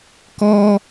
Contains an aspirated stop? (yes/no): no